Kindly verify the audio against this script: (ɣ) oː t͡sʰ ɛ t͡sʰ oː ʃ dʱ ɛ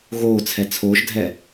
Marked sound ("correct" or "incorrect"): correct